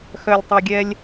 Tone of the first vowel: high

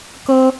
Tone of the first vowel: high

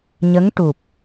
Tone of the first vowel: rising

